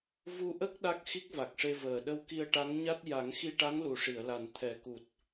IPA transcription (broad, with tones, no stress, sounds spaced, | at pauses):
v u˧ ʔ ə˦˥ k̚ ɗ a˦˥ k̚ x i˦˥ k̚ v a˨˩ k̚ ʂ e˧ v əː˨˩ ɗ ə˧ w k i˧ ə̯ ʈ a˧˥ ŋ ɲ a˦˥ t̚ j a˨˩˦ ŋ x i˧ ʈ a˧˥ ŋ l u˨˩ ʂ i˨˩˨ ə̯ l a˨˩ n t̪ʰ ɛ˨˩ k u˨˩ t̚